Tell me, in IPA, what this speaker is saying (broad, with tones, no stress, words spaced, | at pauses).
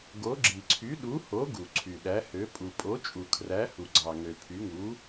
ɡo˩˥ ɡ͡ǁi˩ǀʰy˩˥ ɗu˩˥ho˩˥ ɡu˩ ǀʰy˩ɗæ˩˥hø˩˥ pʼu˩pʼo˩˥t͡ʃʼu˩ kʰræ˩˥hu˩ɡ͡ǀɑ˩ŋø˩ pʰy˩˥ŋu˩˥